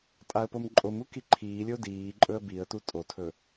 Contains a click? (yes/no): yes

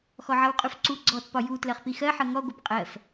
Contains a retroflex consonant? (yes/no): no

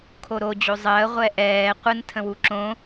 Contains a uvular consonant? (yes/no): yes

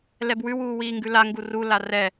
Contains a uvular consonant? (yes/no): no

